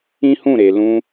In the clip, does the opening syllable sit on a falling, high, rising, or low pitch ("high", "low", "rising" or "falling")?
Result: high